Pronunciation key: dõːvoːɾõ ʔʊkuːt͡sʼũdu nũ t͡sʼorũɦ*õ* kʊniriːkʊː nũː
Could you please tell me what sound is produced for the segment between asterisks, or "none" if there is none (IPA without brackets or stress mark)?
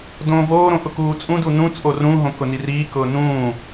õ